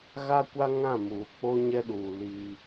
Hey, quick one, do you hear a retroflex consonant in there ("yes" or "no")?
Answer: no